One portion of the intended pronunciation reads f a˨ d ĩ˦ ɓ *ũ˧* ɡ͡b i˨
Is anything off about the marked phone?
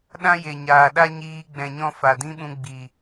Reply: no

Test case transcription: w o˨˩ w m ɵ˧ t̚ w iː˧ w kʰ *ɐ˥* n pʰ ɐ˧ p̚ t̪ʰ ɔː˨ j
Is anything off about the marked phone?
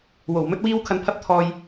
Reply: yes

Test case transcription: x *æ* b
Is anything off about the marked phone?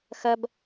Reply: yes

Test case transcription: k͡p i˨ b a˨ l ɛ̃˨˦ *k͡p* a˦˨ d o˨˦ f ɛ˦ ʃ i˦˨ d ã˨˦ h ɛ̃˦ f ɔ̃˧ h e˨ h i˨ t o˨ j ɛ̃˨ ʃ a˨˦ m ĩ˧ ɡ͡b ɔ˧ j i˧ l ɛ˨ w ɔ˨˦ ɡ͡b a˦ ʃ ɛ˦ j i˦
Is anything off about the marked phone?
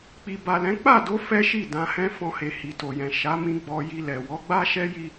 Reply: no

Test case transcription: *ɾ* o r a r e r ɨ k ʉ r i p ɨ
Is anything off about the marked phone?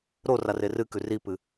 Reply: no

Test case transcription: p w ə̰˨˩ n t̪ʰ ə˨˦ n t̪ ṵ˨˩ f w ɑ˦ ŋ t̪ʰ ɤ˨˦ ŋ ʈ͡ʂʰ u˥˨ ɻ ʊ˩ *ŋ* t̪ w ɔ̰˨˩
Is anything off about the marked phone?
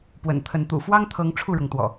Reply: no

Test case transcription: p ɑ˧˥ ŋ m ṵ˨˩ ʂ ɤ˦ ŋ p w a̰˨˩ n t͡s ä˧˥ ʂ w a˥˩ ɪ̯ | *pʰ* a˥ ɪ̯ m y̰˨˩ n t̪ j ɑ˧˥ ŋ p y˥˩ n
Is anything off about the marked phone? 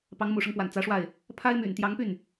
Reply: no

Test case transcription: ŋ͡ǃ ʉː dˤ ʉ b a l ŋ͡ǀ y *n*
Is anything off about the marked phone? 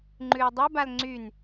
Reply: no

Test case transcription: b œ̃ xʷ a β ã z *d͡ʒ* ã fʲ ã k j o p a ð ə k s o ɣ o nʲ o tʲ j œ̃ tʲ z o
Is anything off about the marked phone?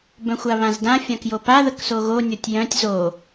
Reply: yes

